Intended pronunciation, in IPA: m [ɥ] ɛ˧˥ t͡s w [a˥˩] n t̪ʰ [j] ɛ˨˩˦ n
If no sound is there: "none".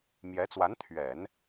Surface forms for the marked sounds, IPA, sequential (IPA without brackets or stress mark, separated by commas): j, a˧˥, ɥ